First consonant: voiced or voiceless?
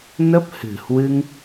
voiced